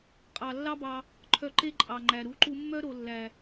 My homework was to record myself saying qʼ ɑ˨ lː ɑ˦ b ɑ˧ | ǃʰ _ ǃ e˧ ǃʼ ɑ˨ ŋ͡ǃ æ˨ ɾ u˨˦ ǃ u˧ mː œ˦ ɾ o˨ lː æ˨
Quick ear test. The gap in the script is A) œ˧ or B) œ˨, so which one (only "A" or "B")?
B